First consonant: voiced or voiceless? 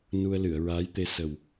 voiced